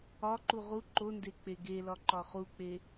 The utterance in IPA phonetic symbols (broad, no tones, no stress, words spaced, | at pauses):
ɒǃu ʁu ǃonde k͡peɡelɒ ǃɒχuk͡pe